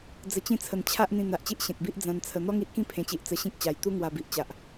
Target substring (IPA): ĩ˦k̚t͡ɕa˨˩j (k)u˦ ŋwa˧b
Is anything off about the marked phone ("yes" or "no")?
yes